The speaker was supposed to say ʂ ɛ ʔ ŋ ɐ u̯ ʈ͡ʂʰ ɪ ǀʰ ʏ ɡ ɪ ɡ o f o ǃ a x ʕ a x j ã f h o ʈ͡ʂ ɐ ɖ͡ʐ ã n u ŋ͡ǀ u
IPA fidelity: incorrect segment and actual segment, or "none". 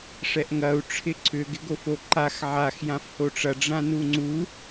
none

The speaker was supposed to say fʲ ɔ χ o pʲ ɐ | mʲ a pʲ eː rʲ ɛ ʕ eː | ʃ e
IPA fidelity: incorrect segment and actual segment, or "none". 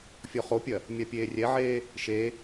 none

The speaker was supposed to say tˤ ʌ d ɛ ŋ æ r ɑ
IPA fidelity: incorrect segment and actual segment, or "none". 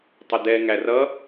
ɑ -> ʌ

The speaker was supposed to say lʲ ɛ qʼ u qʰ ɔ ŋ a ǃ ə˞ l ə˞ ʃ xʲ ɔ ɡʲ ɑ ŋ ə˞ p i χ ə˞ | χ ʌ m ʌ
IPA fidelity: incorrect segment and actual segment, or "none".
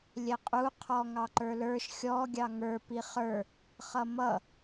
a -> ɑ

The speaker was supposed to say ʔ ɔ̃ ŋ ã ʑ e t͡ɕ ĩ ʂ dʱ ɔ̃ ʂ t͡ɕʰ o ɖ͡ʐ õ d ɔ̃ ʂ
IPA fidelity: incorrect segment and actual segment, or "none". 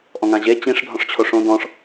ɖ͡ʐ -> ʂ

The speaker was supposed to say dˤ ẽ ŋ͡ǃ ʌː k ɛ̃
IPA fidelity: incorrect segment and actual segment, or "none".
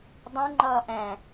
k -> ʔ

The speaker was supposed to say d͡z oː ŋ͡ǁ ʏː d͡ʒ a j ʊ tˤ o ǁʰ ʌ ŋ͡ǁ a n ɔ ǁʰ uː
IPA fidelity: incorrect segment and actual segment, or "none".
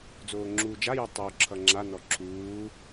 ʏː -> uː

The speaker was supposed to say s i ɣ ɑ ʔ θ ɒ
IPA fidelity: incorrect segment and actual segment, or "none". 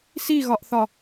ɑ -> ɒ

